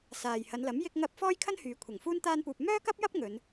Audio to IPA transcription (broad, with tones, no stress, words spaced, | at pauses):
saː˨jhɐ˨˧nlɐ˨˥m jɪ˥k̚ŋɐ˥p̚ fɔː˥jkʰɐ˥nhyː˨˧ kʷʰɐ˨˩ŋ fuː˥n t̪aː˥npuː˧p̚ mœː˥kɐ˥p̚jɐ˥p̚ ŋɵ˨˧n